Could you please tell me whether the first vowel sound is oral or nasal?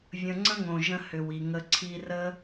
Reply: nasal